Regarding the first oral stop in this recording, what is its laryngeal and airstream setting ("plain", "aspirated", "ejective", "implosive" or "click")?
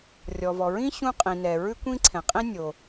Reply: ejective